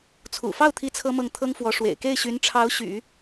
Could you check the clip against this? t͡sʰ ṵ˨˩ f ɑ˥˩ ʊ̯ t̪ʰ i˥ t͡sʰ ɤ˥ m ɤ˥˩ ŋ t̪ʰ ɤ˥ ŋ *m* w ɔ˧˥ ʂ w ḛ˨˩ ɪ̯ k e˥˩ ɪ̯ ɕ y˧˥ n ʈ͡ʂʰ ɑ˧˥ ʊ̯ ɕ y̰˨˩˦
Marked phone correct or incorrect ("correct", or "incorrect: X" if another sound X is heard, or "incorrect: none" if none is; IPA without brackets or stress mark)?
incorrect: f